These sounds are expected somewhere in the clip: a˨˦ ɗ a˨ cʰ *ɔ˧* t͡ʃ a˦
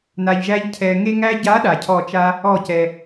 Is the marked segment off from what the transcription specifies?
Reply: yes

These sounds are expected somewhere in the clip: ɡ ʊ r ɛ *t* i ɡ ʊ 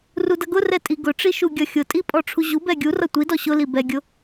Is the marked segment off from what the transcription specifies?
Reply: yes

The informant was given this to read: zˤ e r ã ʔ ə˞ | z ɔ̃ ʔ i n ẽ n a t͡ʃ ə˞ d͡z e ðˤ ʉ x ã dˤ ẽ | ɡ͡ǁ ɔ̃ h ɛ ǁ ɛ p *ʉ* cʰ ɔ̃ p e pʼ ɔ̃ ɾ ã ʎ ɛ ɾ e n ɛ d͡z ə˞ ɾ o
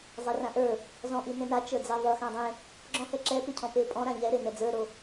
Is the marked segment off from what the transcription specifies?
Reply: no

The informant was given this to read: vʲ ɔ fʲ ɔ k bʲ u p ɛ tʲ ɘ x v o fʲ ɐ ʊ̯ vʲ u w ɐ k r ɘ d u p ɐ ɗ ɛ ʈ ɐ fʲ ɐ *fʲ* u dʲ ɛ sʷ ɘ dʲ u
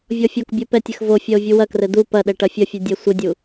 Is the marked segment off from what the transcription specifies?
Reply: no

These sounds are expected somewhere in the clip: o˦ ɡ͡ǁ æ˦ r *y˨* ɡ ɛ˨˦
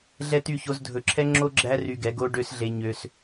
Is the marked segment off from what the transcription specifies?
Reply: yes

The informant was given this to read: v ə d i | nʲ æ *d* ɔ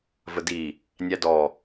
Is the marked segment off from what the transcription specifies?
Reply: no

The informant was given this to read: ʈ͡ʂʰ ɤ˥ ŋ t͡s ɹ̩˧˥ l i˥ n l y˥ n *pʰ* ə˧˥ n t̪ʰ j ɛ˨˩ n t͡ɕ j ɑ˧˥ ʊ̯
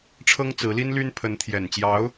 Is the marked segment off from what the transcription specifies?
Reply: no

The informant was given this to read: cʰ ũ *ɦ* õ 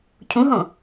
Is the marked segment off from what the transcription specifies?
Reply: no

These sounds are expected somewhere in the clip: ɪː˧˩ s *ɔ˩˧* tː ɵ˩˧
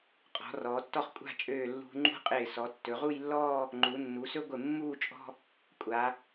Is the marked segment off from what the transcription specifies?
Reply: no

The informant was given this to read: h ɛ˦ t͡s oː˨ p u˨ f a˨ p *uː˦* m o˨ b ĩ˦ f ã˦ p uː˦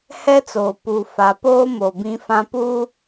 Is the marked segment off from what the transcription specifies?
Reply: yes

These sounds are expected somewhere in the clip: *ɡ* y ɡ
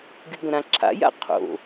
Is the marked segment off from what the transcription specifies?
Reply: no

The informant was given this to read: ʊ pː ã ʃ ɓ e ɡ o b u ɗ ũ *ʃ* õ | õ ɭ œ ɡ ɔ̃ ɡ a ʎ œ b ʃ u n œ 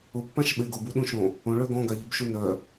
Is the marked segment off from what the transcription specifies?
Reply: no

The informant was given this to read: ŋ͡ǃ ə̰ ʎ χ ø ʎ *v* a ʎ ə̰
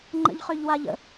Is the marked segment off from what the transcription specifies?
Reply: yes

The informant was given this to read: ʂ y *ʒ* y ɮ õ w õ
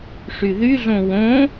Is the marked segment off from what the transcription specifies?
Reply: yes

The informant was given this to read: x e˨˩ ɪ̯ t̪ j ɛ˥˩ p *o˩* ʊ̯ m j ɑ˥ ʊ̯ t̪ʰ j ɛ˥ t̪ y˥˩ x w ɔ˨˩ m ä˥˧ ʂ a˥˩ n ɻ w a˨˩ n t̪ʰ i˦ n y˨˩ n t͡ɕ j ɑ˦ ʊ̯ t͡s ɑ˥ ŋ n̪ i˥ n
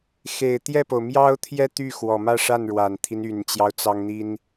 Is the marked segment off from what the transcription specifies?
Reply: no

